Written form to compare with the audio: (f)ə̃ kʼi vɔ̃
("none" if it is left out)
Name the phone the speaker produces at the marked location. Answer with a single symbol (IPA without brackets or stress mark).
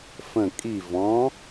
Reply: f